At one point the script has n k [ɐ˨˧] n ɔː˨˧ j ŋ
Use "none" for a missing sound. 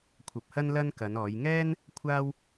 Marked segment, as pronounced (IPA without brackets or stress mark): ɐ˨˧